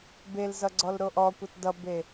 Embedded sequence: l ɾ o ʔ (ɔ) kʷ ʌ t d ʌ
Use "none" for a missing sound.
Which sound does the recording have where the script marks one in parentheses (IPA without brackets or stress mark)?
ɔ